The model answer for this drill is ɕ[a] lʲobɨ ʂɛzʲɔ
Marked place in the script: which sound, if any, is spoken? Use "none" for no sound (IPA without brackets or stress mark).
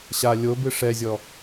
a